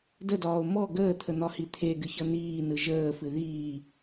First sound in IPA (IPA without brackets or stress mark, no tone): d